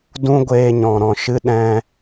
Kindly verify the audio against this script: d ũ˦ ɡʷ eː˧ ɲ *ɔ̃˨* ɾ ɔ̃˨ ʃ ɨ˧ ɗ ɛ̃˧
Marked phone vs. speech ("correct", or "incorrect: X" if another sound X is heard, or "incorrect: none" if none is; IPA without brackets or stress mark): correct